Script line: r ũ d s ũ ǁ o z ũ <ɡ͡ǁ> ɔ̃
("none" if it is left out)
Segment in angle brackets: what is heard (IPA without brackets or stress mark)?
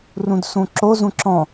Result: ǁ